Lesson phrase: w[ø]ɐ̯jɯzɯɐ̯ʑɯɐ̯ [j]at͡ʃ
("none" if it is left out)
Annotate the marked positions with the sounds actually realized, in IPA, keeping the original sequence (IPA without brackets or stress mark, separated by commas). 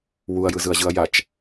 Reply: u, j